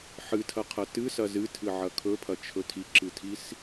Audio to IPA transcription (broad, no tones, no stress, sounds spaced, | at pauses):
ħ ɨ tʰ ɐ qʰ ɐ t ɨ s ɐ z ɨ tʰ ɨ ʕ ɐ kʰ ɵ pʰ ɐ t͡ʃʰ ɵ tʰ i ǁ ɨ tʰ i s